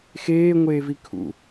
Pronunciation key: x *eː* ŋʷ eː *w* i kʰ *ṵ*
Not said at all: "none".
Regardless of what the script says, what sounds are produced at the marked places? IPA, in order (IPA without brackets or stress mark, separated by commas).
eː, v, ṵ